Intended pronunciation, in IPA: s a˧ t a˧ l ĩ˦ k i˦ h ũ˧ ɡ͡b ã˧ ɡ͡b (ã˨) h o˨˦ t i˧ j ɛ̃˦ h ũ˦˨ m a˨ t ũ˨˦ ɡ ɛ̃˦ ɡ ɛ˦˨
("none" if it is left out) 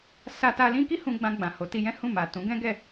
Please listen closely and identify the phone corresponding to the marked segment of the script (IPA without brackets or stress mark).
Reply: ã˨